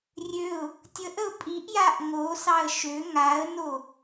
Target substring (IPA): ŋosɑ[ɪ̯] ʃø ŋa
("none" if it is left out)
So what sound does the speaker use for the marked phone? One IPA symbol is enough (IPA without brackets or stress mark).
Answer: ə̯